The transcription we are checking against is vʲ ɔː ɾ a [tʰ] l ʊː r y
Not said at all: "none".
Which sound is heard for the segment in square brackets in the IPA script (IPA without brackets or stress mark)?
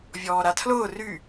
tʰ